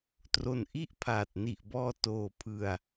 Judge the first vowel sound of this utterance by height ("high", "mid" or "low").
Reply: mid